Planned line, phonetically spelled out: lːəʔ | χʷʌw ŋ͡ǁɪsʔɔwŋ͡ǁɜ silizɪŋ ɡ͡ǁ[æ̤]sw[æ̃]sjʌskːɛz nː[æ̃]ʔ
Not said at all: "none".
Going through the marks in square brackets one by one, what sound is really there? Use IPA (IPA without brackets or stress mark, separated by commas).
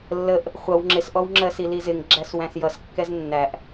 æ, æ̃, æ